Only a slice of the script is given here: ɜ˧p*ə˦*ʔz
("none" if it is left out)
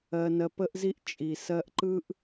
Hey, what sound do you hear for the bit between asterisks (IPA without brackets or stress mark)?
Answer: ə˦